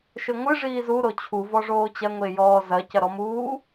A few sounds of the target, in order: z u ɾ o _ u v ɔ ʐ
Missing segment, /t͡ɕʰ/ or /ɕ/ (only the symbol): t͡ɕʰ